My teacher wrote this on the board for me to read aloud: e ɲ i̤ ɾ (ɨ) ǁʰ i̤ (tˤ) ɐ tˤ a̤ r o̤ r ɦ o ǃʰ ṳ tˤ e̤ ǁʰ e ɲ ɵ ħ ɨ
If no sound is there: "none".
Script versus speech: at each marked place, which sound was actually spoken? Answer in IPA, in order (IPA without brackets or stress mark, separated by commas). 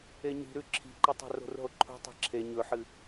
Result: ʉ, ǃ